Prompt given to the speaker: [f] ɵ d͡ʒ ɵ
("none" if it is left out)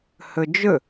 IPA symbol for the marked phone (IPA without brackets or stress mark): h